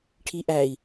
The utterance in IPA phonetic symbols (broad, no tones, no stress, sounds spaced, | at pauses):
ʈʰ i ʔ æ i̯